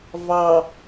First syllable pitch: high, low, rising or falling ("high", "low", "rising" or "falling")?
low